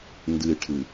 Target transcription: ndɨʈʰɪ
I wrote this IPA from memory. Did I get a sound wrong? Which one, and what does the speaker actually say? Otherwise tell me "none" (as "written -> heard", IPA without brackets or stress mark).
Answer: ɪ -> ɨ